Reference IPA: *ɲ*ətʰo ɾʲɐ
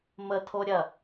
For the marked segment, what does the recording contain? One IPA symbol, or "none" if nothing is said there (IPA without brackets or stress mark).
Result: m